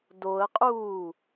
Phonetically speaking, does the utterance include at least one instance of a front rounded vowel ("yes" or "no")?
no